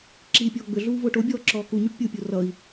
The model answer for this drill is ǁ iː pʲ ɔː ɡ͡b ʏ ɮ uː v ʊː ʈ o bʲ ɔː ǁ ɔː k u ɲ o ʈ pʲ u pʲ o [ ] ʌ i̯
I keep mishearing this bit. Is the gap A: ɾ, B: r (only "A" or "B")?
B